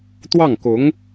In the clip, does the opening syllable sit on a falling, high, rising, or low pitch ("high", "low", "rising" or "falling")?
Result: falling